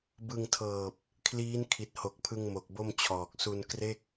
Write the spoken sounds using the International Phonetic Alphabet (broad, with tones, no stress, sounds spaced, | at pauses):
b ɯ˧ ŋ tʰ ɤː˨˩ p̚ | kʰ l iː˦˥ n kʰ i˨˩ t̚ h o˨˩ k̚ pʰ ɯ˧ ŋ m o˨˩ k̚ b o˥˩ m t͡ɕʰ ɔː˨˩ k̚ s u˧ n k r e˥˩ k̚